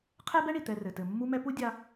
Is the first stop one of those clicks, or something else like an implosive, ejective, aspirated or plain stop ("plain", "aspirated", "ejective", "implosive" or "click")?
aspirated